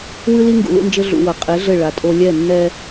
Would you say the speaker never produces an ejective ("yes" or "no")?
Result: no